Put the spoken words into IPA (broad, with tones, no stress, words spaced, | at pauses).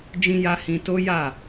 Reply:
d͡ʒĩ˧ja˧ hĩ˧to˦ja˦˨